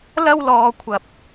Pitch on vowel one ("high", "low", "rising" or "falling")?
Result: high